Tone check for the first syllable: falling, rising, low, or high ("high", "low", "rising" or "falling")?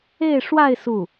falling